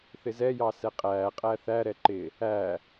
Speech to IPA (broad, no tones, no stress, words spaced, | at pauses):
θɪzɛjɑ sɛqʼæːqʼæ θæɾɛ ǃɪ | æ